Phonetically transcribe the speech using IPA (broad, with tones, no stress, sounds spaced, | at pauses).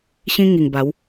ɕ ĩ˦ ŋ i˨˩ ŋ b a˨˦ w